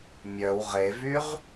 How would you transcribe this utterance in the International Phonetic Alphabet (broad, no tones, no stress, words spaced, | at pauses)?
mʲœw ʁevyʁ